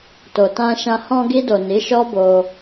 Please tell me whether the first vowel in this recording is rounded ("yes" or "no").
yes